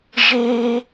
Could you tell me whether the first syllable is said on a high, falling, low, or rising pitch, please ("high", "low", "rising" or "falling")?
high